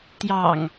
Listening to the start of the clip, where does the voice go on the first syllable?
low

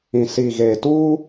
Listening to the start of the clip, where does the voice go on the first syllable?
low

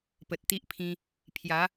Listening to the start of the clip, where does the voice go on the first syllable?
low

